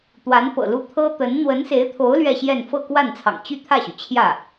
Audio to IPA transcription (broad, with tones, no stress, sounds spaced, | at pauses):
t̪ w a˧˥ n p ɤ̰˨˩ l u˥˩ t̪ʰ ɤ˥ t̪ ə˧˥ n n̪ w ə˧˥ n s e˧˥ ɪ̯ t̪ʰ o˧˥ ʊ̯ l ɥ ɛ˥˧ ɕ j ɛ˥˧ n f ɤ˥˧ k w a˥˩ n t͡sʰ ɑ̰˨˩ ŋ t͡ɕ y˥˧ t̪ʰ ä˥˩ ɕ y˩ t͡ɕʰ j ä˥˩